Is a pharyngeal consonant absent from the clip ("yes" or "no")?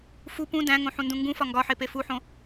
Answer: no